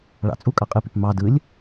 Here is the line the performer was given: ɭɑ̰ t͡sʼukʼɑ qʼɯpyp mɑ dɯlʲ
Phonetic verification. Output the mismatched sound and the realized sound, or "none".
none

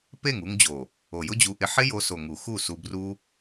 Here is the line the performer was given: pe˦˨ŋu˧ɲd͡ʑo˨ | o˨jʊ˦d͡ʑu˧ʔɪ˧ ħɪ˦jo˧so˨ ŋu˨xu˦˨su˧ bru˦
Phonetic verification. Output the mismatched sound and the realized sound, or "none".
ɲ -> ŋ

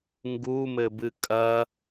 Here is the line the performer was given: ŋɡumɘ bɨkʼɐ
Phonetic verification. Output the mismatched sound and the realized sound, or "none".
none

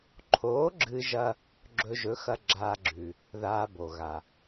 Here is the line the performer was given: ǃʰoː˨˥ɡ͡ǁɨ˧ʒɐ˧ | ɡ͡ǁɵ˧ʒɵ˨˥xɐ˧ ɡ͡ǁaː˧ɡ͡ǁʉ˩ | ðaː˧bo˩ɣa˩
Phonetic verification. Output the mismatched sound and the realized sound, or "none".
none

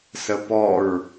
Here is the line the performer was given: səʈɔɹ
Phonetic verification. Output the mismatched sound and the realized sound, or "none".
ʈ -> p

